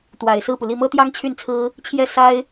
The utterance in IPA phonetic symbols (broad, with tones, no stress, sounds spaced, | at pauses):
t̪ w a˨˩ ɪ̯ s ɹ̩˥˩ p u˩ l i˥˩ m ɤ˥ t̪ j ɑ˥ ŋ t͡ɕʰ y˥˩ n t͡sʰ ɹ̩˥ | t͡ɕʰ j ɛ˥˩ s a˥ ɪ̯